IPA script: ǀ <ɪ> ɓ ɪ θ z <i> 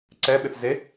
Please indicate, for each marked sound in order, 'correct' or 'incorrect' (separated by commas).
incorrect, incorrect